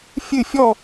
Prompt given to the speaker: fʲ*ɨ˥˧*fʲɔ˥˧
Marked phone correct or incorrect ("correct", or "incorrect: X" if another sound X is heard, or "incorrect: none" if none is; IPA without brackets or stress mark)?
correct